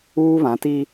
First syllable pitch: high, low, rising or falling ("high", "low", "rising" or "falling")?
high